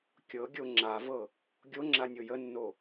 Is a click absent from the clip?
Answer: no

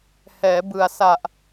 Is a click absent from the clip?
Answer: yes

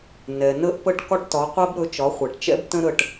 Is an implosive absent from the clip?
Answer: yes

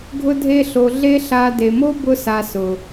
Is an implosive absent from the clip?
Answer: yes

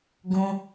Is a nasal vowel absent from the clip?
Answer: no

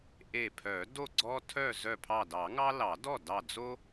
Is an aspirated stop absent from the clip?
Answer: no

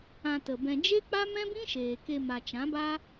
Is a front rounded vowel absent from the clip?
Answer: yes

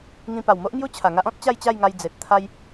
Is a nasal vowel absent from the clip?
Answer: no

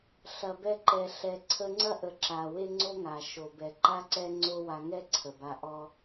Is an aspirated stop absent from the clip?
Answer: no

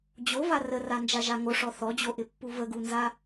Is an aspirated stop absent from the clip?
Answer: yes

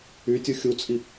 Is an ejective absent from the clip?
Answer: no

